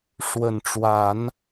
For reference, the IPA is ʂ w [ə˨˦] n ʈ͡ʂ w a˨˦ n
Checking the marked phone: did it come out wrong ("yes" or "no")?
yes